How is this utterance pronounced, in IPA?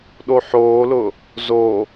ɗ o ħ oː l ʊ | z o

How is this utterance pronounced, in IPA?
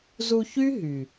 z u˧ ç y˦ ɦ y˨

